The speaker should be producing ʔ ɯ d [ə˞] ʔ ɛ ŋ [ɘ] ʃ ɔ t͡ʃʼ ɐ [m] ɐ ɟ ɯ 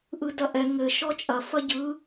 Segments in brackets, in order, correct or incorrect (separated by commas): incorrect, correct, incorrect